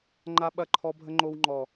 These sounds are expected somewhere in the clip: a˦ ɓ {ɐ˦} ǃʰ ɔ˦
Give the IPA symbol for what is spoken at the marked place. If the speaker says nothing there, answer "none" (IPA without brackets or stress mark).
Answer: ɐ˦